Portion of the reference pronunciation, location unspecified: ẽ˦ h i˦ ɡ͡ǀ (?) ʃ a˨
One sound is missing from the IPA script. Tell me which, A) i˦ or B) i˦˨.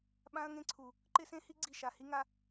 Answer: B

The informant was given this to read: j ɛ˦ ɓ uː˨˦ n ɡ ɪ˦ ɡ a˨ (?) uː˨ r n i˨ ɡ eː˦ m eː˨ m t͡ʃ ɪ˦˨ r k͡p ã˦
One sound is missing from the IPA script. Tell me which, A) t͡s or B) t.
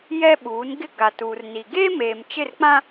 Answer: B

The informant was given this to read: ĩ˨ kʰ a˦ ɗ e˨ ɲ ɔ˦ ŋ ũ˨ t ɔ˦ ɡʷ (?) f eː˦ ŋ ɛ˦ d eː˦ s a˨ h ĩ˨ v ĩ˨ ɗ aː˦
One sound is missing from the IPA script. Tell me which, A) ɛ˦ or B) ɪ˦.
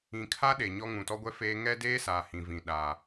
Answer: A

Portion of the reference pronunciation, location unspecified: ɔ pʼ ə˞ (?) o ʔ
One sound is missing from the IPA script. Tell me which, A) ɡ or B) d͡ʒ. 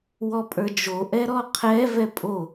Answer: B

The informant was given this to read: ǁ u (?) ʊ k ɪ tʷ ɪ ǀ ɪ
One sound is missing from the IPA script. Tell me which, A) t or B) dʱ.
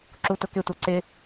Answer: A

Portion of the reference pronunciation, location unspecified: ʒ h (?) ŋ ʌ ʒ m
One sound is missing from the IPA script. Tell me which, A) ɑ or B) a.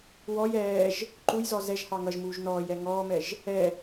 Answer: A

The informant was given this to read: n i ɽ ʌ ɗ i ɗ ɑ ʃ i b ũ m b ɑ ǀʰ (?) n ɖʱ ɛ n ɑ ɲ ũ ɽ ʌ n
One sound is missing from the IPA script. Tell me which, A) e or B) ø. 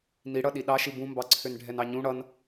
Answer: B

